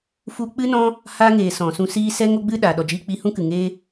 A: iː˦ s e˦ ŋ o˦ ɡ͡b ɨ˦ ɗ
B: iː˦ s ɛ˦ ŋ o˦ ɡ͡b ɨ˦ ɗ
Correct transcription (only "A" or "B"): B